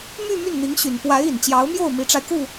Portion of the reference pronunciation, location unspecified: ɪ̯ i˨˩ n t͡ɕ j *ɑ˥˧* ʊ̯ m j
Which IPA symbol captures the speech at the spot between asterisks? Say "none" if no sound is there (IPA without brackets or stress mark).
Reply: ɑ˧˥